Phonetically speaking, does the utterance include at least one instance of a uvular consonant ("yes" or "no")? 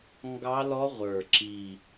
yes